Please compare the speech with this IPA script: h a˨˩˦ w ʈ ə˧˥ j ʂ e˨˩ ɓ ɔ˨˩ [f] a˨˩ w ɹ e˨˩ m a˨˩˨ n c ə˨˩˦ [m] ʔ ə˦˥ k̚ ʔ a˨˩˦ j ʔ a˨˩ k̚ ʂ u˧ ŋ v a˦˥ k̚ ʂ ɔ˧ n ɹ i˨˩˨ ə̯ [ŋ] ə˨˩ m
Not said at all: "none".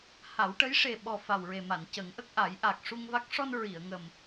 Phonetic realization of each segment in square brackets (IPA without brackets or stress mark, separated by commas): f, ŋ, ŋ